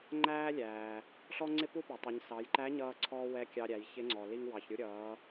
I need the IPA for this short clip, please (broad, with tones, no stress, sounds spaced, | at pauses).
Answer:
ŋ͡ǃ æː˥ lʲ æː˩ | ɬ ɔ˥ ŋ͡ǀ ɪ˥ p u˥ p æ˩ tˤ ɪ˩˧ ɲ s ɑ˩˧ j ǃ æ˧˥ ɲ ʌː˧ ǀʰ ɔː˧ w ɛ˧˥ kʲ ɑ˧ ɾʲ æ˩˧ j ç ɪ˧˥ ŋ͡ǀ ɔ˩ l i˧ ŋ w ɑ˩ ç ɾʲ u˧ ɾʲ ʌː˩˧